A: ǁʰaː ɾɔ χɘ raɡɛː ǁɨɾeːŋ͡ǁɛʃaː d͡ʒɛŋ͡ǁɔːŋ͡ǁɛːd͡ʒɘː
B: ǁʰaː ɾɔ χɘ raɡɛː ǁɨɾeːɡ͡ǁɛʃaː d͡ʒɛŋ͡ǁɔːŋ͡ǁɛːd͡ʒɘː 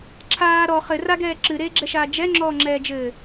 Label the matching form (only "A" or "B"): B